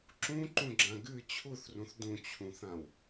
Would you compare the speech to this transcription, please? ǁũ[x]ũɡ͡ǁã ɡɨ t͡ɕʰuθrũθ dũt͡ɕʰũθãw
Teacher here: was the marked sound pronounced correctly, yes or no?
no